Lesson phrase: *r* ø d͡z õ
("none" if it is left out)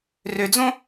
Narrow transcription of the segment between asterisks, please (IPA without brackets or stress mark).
r